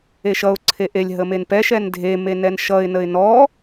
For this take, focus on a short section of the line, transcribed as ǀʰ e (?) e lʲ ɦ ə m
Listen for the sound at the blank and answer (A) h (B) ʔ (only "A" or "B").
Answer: B